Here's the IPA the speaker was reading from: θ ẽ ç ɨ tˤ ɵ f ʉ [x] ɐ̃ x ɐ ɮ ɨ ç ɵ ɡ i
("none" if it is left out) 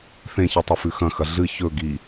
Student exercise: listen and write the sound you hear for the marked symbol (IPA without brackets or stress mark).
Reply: x